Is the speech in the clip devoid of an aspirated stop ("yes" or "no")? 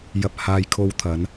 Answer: no